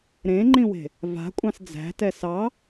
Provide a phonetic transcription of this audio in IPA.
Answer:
ɾẽŋ͡ǃĩwe̤ | va̤kʷʼɑ̃s d͡zæ̤tɛ sɑ

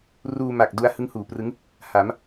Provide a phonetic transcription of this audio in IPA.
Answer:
ruː˧ma˨˩k̚du˧a̯ hɯ˦˥ŋhuː˩˦prɯ˦˥ŋ | ha˩˦m

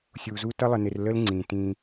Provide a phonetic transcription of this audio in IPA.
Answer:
sʲu˨zu˦ tʌ˦lˠə˨nɪ˨r lə˦l ŋ͡ǀĩ˨tĩ˦

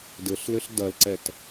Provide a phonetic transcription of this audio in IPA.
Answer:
dɘɬlɘɬ dɐlǀɛt

